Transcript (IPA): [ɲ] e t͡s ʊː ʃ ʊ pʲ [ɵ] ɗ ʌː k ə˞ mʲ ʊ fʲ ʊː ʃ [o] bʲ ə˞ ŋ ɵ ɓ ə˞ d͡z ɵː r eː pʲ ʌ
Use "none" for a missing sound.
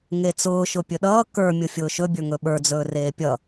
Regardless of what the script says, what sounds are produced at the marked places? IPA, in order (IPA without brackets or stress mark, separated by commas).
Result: ŋ, ɵ, ɵ